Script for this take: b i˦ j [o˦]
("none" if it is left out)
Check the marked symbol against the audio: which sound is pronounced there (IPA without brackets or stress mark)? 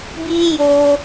o˦